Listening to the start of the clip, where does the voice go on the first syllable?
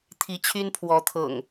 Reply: rising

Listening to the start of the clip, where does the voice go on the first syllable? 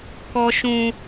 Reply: high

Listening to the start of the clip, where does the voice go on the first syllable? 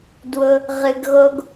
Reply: high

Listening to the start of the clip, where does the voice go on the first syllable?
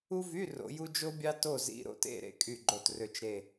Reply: high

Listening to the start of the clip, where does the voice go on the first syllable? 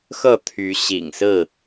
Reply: falling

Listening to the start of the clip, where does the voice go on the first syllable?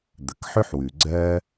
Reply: low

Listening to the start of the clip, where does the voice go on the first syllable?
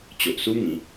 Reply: low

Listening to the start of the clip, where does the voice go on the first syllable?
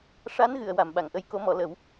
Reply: rising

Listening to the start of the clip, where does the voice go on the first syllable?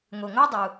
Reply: low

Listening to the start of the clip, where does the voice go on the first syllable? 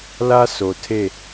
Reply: high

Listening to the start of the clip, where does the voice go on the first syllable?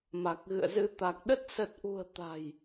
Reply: low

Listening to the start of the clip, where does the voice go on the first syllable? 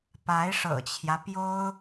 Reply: rising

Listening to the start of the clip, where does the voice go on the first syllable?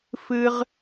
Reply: high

